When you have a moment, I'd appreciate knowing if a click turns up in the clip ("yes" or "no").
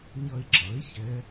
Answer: yes